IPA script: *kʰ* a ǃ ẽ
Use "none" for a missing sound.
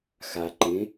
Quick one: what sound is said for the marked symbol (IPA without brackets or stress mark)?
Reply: x